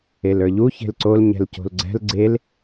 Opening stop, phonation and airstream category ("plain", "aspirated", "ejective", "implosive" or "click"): click